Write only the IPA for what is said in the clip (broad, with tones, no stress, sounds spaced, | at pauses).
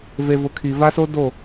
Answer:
v e˨ v ʊ˨ kʰ i˨ v a˦ s o˦ d o˦˨